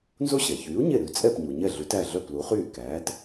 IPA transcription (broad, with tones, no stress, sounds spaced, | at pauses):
n z o˥ ɕ ɛ˩ ç yː˩˥ u̯ ɲ e˥˩ ɾ ʉ˩˥ t͡sʼ ɛ˥˩ p ɲ u˩ ɲ ɛ˥˩ ɮ ʉ˩˥ t æ˥˩ ɮ œ˥˩ p l u˩˥ χ yː˥˩ k æː˩˥ t